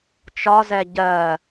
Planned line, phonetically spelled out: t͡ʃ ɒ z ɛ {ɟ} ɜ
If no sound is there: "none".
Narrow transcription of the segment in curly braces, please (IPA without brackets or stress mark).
ɟ